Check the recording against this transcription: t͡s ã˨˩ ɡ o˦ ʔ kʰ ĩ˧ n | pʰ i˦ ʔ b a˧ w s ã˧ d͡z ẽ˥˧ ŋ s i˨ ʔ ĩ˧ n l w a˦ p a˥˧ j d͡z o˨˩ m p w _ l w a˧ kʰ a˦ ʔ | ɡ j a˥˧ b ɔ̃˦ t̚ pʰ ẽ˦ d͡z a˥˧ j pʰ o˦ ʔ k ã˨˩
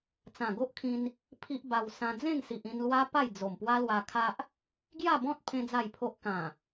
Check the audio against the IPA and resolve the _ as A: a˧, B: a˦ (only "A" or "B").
B